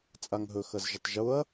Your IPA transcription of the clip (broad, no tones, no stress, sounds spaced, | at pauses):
t͡sʼ a ŋ ɦ ɵ x ɐ z ʒ ʊ tˤ ʒ ʊ ɐ̯